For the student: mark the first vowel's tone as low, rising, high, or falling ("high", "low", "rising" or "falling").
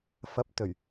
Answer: rising